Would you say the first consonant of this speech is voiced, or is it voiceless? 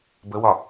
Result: voiced